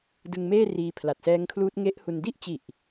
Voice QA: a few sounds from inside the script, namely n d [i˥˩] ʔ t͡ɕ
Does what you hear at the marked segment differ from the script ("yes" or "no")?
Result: no